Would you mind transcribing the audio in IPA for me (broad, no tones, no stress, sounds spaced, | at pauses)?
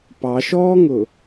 p ɑ ʃ ɔː ŋ ʊ